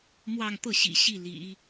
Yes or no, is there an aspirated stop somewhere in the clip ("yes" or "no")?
no